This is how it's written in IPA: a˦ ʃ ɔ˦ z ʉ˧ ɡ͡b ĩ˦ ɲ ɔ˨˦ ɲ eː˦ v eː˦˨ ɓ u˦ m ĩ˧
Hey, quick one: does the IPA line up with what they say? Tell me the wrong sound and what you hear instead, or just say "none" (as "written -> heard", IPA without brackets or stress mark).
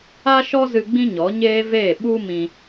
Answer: ʉ˧ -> ɨ˧